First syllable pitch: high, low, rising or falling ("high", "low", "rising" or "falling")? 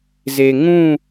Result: low